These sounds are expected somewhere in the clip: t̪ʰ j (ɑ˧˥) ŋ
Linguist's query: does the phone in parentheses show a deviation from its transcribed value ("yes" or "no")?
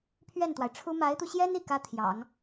yes